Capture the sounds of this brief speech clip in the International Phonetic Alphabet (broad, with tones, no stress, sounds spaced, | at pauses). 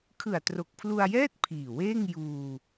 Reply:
kʰ ɯ˨˩ a̯ t r o˨˩ k̚ pʰ l u˧ a̯ j ɛː˥˩ t̚ pʰ iː˨˩ w eː˥˩ ŋ j uː˧